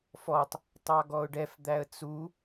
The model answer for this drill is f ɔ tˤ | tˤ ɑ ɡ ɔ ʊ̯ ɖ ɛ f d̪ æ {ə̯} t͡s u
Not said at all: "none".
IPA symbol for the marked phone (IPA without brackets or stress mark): ə̯